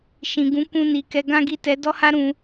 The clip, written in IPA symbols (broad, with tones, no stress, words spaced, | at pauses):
ʃĩ˨ ɡũ˨˦kũ˧ ni˨kɛ˨˦ɡã˦ɡi˦˨ tɛ˨˦dɔ˦ha˦ ɾũ˧